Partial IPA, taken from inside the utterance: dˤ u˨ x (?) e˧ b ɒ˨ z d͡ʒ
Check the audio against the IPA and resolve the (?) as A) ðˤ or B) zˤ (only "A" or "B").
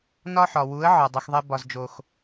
A